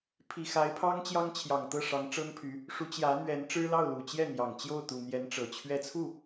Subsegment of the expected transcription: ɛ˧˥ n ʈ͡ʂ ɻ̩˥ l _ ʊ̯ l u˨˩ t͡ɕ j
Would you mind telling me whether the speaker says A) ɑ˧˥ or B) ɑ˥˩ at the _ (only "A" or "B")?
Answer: B